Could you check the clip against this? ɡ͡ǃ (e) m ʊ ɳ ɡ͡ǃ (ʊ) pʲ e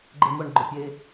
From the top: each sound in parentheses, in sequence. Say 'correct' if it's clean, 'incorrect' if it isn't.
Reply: correct, correct

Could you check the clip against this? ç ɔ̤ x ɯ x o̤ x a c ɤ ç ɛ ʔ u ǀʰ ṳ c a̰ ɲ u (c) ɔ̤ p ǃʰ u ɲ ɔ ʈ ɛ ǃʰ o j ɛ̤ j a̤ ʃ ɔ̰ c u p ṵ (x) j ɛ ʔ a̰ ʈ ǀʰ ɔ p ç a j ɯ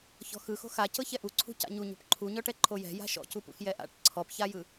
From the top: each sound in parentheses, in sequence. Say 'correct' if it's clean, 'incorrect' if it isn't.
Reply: incorrect, correct

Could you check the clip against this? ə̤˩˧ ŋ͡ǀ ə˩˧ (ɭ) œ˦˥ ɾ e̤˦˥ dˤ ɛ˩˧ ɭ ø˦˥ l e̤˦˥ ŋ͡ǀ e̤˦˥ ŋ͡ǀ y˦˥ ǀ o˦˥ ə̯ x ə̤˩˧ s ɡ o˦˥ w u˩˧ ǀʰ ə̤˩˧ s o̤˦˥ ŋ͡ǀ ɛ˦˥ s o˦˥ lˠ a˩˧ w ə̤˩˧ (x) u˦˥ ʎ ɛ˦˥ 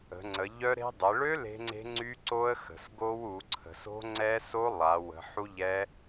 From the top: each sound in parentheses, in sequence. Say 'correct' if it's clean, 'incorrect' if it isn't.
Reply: incorrect, incorrect

